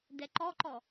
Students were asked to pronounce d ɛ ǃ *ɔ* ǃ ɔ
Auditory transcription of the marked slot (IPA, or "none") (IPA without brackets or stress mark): ɔ